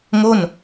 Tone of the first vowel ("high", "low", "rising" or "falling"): falling